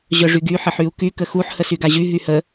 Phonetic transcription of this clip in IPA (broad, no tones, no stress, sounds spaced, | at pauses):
ʑ œ ʐ y ɡ y ħ ə ħ y u̯ k y k ə x u ħ h ə s y ɡ a ʑ y ɦ y h ə